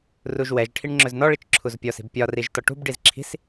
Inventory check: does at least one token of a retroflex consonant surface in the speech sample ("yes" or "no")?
yes